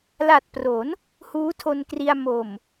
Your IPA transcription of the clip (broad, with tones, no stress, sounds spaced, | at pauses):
l a˨˩ t̚ p r o˩˦ n | h uː˦˥ tʰ o˧ n k r i˧ a̯ m o˨˩ m